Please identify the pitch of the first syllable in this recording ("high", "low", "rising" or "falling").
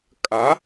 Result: rising